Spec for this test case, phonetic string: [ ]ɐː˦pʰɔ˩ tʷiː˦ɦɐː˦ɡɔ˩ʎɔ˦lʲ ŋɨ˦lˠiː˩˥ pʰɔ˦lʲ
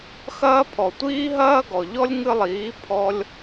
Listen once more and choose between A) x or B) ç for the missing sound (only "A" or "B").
A